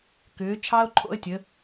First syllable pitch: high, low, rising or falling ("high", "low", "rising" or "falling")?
rising